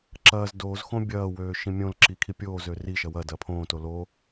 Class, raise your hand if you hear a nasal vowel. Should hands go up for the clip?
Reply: yes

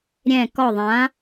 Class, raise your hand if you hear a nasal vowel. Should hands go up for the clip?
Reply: yes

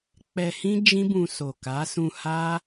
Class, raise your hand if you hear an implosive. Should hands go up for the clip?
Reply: no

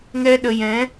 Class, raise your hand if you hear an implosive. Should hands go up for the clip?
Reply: yes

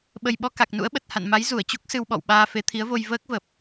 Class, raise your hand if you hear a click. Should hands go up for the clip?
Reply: no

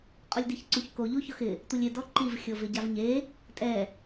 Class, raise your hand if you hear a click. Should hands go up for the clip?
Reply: yes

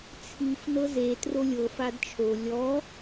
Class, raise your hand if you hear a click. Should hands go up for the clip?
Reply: no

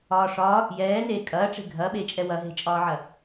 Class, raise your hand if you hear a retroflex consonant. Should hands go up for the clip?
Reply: yes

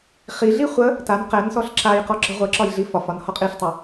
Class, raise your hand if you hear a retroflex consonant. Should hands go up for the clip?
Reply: no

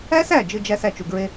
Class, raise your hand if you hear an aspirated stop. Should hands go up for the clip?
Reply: no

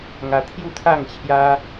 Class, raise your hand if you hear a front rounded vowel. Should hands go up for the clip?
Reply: no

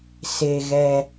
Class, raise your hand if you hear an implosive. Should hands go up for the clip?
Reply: no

